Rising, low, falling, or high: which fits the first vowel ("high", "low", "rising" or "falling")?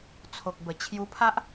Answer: low